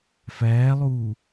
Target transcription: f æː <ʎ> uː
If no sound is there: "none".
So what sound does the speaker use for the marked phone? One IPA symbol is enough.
lˠ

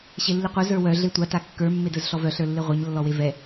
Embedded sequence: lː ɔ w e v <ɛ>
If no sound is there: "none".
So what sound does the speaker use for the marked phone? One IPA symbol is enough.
ɛ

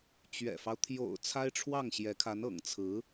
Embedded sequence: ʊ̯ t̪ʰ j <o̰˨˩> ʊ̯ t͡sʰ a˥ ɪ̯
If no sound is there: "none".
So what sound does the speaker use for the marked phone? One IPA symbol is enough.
o̰˨˩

